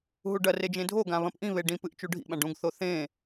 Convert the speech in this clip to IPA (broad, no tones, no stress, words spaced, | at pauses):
ɦuɖɐre d͡ʒẽdʱoɡã βɐ̃pʔĩβe ɖĩpɨʔ t͡ʃuɖʱḭɓãɖ ũɡθo θẽ